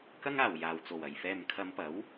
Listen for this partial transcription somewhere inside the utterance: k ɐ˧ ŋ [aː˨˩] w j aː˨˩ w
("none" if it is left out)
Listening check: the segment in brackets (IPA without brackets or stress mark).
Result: aː˨˩